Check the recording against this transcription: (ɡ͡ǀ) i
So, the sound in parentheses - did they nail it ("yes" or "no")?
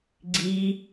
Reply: yes